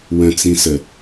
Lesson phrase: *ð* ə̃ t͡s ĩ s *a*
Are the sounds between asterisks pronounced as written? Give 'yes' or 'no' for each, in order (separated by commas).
no, no